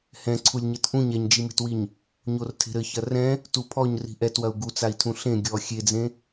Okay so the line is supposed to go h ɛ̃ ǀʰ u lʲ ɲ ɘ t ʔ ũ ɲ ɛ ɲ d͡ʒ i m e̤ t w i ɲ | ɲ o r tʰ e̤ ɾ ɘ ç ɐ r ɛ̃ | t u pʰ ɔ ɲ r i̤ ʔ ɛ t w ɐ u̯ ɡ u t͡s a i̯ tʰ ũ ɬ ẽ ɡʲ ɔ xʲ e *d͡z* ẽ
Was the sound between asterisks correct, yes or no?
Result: yes